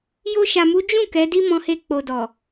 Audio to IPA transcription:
j o˧ ʃ a˨ m u˨˦ d͡ʒ ũ˦˨ k ɛ˨˦ d i˦ m ɔ̃˧ h e˧ k͡p o˨ d ɔ˨

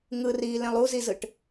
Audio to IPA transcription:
ŋ ɯ r iː l ẽ lˠ u z i z ɯ ʈ

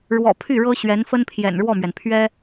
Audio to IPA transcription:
ɻ w ɔ̰˨˩ pʰ y˥˩ ɻ ɤ˥ ɕ ɥ ɛ˧˥ n f ə˥ n pʰ j ɛ̰˨˩ n ɻ w ɔ˥˩ m ɥ ɛ˩ n pʰ ɥ ɛ˥

